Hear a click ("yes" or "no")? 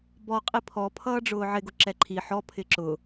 yes